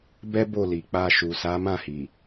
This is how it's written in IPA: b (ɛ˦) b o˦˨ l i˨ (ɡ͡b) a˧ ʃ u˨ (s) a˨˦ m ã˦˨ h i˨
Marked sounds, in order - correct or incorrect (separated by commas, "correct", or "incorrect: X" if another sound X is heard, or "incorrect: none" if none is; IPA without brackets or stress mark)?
correct, incorrect: k͡p, correct